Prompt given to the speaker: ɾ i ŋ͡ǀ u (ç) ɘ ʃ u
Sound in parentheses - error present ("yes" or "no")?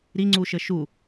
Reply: yes